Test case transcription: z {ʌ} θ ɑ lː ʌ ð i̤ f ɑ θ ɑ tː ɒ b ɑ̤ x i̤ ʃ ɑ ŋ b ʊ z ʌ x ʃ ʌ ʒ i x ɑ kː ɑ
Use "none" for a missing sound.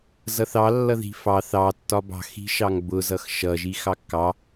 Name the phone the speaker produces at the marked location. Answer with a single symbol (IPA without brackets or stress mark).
ʌ